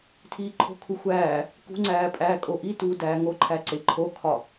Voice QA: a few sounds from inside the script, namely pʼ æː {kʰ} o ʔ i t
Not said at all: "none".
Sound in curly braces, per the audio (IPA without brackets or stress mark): kʼ